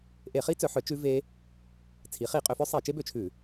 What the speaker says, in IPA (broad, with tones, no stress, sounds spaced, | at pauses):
ʔ e˧˩˧ χ i˦˥ t͡s œ˩˧ ħ œ˩˧ t͡ʃ ʉ˦˥ v e˦˥ | t͡sʰ i˩˧ χ i˧˩˧ qʼ ø˩˧ f œ˦˥ sˤ e˧˩˧ t͡ʃ e˦˥ b ø˧˩˧ t͡ʃʰ ʉ˧˩˧